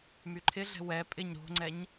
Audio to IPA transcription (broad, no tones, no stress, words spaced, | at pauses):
myǃʰɪɮɛ̤ wɛ pʼɪɲ ɾo̤ŋ͡ǀɛɲ